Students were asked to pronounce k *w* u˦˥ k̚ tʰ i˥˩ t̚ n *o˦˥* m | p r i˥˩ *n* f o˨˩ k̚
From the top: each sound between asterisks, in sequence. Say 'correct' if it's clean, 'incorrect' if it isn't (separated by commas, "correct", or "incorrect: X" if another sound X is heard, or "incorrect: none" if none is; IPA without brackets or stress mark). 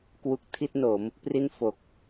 correct, incorrect: o˩˦, correct